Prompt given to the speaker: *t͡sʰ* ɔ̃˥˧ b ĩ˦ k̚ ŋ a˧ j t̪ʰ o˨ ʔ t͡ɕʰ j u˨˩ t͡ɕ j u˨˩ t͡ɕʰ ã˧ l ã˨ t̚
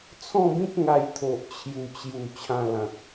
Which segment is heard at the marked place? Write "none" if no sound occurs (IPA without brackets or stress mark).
t͡sʰ